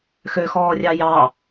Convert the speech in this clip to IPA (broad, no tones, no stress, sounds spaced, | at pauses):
x ø x ɔː rʲ ɑ j ɑ